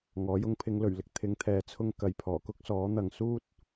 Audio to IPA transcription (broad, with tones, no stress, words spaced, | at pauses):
ŋɔː˨˥jʊ˧ŋ pʰɪ˨˧ŋlɵ˨˩ɥlɪ˨k̚ t̪ʰɪ˨˧ŋt̪ʰɛː˨ t͡sʰʊ˥ŋkɐ˨j pʰɔː˨˩kʊ˥k̚sɔː˨˥n̪ɐ˨ŋ suː˥t̚